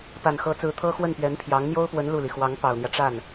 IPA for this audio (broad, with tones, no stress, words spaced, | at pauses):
pa˨˩nxɤ˧˥t͡sɹ̩˧˥ t̪ʰɤ˥xwə˥˩npɥɛ˧˥npʰjɑ˧˥ŋ n̪jo˥ʊ̯pwə˧˥n lu˥˩li˩ xwɑ˧˥ŋpɑ˨˩ʊ̯n̪jä˦ ʈ͡ʂa˥˩n